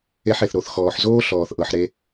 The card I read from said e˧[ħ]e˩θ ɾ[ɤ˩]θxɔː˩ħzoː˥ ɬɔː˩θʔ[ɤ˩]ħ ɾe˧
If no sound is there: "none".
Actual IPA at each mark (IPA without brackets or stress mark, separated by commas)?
ħ, o˩, ɤ˩